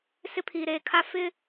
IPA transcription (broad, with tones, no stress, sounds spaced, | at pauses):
s ɪ˦ pʰ iː˨ ɾ eː˨ kʰ a˦ f ɪ˦